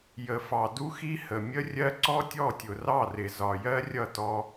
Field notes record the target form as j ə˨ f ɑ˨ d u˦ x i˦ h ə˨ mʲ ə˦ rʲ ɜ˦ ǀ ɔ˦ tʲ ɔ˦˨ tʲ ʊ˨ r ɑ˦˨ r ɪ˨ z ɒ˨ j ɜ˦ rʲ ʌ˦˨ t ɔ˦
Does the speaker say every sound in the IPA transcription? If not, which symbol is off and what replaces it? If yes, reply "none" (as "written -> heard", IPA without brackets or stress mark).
none